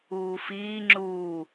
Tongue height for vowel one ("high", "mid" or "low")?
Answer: high